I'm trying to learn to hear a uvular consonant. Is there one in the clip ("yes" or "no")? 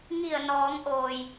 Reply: no